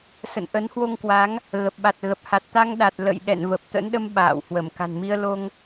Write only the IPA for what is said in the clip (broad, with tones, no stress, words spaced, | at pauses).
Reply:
sə̰˧˨nʔə˨˦nhwo˧ŋkwa˨˦ŋ | ɣə˨˩p̚ɓa˨˩t̚ɣə˨˩p̚ ha˨˩t̚t̪a˧ŋɗa˨˩t̚ lə̰˧˨jɗɛ̰˧˨n və˨˩p̚t̪ə̰˧˥nɗə˧m ɓa̰ː˧˨whwə˧˩m ka̤˨˩nmi˧ə̯ lo˧ŋ